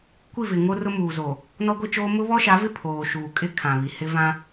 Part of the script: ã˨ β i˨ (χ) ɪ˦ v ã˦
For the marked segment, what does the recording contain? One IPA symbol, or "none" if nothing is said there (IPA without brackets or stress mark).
h